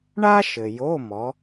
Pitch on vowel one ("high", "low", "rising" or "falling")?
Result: high